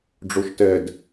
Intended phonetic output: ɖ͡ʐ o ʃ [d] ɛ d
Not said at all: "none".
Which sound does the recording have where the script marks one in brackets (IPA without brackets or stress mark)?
t